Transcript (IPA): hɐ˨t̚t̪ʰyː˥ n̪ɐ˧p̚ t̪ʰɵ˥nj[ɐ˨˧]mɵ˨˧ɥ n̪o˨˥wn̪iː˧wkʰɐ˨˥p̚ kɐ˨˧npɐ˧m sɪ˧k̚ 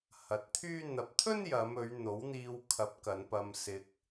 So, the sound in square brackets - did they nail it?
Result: yes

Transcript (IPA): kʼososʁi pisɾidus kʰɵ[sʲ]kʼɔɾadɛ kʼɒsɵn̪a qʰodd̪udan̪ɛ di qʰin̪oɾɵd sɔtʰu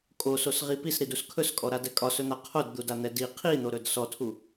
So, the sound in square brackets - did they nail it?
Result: no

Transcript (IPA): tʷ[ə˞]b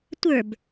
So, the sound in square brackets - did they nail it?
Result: yes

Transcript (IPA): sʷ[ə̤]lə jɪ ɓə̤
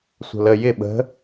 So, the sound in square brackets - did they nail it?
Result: yes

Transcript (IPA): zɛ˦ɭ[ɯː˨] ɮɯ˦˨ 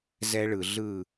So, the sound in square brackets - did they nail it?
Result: no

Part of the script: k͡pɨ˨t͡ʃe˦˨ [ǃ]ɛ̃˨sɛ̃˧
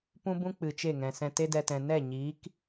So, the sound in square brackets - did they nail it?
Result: no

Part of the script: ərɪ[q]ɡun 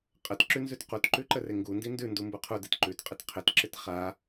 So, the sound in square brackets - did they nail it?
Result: no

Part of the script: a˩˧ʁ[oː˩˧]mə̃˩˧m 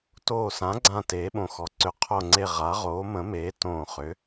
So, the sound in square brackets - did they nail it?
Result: yes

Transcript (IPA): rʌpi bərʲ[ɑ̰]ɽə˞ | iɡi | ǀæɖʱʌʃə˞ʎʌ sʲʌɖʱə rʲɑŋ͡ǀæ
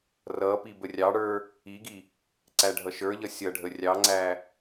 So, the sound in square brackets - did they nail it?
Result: no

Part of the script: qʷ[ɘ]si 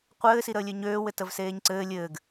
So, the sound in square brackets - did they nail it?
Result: no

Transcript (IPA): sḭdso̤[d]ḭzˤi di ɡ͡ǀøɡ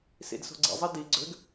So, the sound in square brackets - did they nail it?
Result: no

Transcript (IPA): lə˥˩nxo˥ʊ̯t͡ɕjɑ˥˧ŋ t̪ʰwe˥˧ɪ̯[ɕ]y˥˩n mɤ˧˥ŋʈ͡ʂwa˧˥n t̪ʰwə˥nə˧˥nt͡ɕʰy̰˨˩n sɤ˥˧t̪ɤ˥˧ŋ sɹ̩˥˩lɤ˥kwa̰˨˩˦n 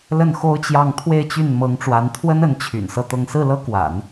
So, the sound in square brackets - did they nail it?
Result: no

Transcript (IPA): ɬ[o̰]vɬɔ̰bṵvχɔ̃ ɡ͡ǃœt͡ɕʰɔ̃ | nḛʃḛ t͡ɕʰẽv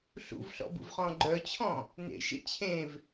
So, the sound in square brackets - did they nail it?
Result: no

